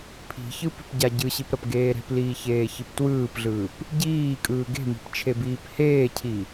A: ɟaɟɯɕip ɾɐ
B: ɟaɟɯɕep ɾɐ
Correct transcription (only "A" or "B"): A